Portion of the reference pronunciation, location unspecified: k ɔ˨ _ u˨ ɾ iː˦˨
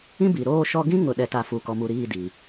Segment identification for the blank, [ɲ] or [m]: m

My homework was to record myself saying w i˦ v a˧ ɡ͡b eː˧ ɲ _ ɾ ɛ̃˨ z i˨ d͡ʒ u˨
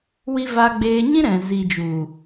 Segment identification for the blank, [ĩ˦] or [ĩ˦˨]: ĩ˦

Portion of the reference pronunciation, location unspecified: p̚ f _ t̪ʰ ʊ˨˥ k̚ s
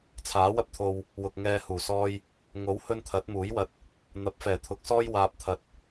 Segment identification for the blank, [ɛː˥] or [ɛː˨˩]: ɛː˨˩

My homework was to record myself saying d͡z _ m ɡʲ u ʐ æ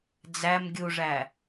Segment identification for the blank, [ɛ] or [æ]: æ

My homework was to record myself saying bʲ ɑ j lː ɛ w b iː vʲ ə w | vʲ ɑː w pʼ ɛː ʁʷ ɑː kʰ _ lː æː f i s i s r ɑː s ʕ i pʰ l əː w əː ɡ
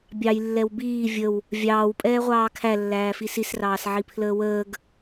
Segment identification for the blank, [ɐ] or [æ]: æ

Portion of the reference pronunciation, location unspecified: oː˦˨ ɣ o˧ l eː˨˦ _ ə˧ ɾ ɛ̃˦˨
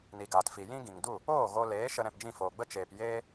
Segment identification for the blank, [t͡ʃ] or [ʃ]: ʃ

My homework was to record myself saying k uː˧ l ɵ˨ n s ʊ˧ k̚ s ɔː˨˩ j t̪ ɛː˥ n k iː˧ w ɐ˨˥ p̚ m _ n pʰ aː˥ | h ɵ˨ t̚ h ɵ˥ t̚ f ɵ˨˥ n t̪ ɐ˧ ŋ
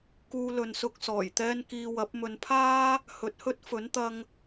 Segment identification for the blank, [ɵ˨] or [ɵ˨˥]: ɵ˨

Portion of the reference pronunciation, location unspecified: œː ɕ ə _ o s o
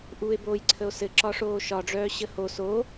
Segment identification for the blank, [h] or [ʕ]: h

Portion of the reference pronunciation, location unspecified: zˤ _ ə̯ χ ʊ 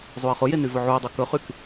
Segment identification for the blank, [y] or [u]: u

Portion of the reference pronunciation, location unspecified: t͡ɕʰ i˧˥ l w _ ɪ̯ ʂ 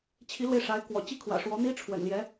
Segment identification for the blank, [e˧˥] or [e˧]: e˧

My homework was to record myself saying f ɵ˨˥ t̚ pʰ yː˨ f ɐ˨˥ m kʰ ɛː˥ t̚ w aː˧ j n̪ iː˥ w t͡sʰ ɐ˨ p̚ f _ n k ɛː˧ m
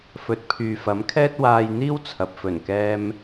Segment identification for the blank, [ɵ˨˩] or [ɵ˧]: ɵ˨˩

